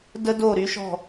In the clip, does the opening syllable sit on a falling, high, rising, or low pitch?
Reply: high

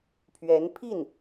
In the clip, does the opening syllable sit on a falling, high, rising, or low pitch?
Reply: rising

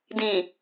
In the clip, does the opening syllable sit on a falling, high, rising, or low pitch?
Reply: low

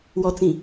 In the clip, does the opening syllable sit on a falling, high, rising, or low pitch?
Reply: low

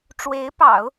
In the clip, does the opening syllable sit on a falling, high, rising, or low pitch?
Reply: rising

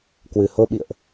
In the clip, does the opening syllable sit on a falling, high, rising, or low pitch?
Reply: low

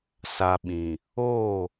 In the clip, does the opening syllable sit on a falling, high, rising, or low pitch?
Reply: low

